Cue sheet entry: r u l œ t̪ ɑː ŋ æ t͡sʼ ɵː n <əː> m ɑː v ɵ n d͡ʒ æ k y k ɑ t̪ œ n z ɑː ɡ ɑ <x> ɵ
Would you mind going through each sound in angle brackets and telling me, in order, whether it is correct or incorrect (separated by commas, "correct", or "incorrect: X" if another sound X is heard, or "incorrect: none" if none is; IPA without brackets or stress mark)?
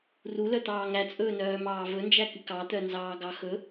incorrect: œː, correct